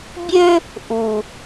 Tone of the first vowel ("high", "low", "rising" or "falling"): high